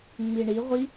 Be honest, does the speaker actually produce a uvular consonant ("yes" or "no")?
yes